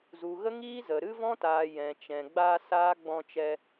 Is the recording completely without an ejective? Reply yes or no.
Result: yes